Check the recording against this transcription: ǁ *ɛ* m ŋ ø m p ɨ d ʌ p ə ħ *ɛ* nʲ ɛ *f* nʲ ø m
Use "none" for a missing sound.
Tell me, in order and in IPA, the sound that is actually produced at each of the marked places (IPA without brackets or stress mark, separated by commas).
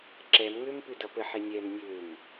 ɛ, e, m